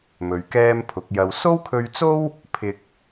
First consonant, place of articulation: labial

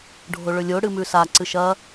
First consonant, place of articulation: retroflex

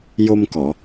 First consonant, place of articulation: palatal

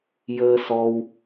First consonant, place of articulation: palatal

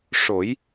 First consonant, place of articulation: retroflex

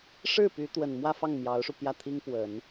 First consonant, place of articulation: retroflex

